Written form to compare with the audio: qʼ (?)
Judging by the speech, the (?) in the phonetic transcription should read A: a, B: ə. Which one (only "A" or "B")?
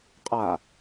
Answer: A